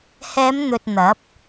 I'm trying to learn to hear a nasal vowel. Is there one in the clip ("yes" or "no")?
no